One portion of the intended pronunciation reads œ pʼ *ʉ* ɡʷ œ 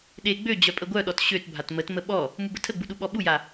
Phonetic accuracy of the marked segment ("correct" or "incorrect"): incorrect